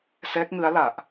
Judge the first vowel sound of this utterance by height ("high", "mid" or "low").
mid